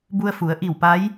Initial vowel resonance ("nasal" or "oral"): oral